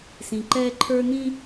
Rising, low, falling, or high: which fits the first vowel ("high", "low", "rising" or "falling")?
low